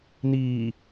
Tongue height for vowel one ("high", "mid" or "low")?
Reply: high